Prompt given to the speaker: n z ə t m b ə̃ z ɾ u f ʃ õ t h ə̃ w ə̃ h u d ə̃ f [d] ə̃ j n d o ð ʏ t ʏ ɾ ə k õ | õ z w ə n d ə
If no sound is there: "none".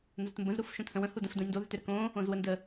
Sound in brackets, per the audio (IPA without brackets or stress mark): d